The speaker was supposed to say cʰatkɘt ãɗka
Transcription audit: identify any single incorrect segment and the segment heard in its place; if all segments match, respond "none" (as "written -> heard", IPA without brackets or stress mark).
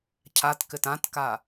ɗ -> t